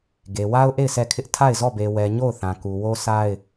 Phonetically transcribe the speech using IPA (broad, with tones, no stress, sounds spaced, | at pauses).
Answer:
ɡ e˨ w a˦ ʊ̯ ʔ e˦˨ ɪ̯ s ɛ˦˨ kʰ ɪ˦ ʔ tʰ a˦˨ ɪ̯ z ɔ˦˨ b e˨ w ɛ˨ ɲ o˦˨ ʊ̯ θ ã˨ k u˨ w o˦ sʰ a˦ ɪ̯